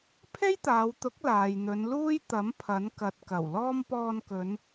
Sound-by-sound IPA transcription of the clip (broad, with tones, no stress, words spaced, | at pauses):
pʰe˥jt̪aː˨˧wt̪ʊ˨˥k̚ laː˨jn̪ɵ˨˧nluː˥j t̪ɐ˨˥m pʰɐ˨˥n kɐ˨t̚ kɐ˨˩wlɔː˥m pɔː˧nkɵ˨˧n